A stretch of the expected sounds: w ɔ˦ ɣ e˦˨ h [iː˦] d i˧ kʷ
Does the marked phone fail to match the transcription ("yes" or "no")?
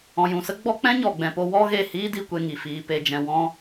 no